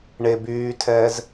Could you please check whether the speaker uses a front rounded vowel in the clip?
yes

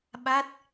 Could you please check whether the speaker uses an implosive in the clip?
yes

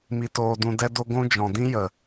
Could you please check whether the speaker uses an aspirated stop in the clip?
no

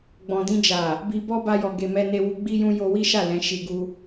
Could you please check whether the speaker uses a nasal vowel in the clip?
yes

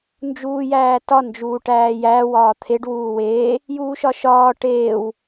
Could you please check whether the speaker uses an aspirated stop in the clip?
yes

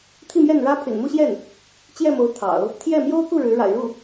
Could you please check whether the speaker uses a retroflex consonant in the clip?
yes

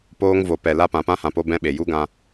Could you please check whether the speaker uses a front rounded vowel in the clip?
no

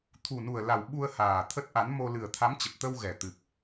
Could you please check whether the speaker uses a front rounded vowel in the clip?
no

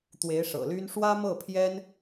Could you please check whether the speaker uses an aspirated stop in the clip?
yes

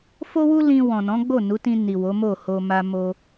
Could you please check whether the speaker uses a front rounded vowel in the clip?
no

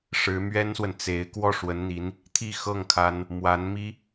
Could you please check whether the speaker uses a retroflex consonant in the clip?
yes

